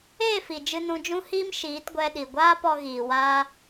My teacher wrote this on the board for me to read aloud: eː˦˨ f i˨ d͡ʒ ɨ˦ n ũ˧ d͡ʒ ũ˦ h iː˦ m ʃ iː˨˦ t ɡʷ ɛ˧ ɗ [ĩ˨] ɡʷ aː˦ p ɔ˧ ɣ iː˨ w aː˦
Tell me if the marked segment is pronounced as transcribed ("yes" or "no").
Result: no